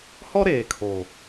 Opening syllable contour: high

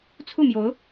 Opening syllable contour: falling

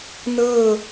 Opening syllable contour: falling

